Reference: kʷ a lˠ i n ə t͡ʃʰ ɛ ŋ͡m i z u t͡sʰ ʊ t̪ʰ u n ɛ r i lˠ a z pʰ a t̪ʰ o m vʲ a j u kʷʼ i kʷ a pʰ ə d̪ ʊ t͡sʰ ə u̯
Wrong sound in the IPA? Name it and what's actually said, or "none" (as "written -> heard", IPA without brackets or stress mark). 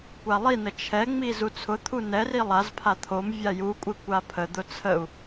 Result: none